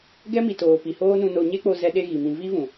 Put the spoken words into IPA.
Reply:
ɡ ɛ˦ m i˨ t oː˨ p i˨ h oː˦ n ũ˧ n o˧ ɲ e˦ k͡p o˧ z ɛ˧ ɗ e˧ ɣ i˨ m ĩ˧ v i˦ v ũ˨

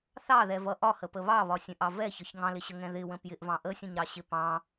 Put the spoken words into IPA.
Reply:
θ ɑ ð ɛ v ʌ ʔ ɒ h ə p ə β ɑ β ɒ sʲ ə̃ ʔ ɑ v ɛ ç ɒ ç ŋ ɑ̃ l ɪ ɕ ə ŋ ɛ̃ ð ɪ w ə̃ p j ɪ ʔ v ɑ̃ ʔ ə sʲ ə̃ ɲ ɾ ɑ ɕ ɪ p ɑ̃

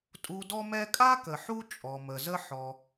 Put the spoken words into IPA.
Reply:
tʼ u˨ d ɔ˦ m ɛ˦ kʼ a˥ k ə˩ ħ u˦ t͡ʃʼ ɔ˩ m ə˩ z ə˦ ħ ɔ˩

